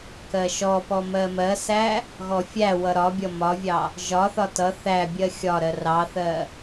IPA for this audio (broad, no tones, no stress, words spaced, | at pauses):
kɜʃɔpɔ mɜmɜsæ | ɣɔfʲæwʌ ɾɒbʲʌ mɒvʲɑ | ʒɒθɒ tʌ θæ bʲɜxʲɒɾɜ rɑθɜ